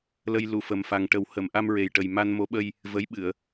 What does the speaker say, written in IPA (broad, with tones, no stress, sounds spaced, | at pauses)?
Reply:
l ə˧ j l u˨˩˨ f ə˨˩ m f a˨˩ ŋ ʈ ə˨˩˦ w h ə˨˩˨ m ʔ a˧ m ɹ e˨˩ j ʈ ə˨˩ j m a˧ n m o˧˥ ɓ ə˧ j | v ə˧˥ j ɓ ɨ˨˩˨ ə̯